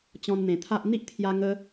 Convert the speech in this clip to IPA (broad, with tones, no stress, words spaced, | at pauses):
t͡ɕɔ̃˧nn̪ẽ˨˩t̪ʰa˦ʔ n̪i˦ʔt̪ʰja˧ ŋə˦